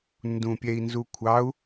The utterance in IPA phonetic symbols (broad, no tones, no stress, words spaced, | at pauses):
ndũpʲɛi̯nzukʷʰɑu̯